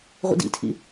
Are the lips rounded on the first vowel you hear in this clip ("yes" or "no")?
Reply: no